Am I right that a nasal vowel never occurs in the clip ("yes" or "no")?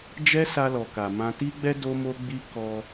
no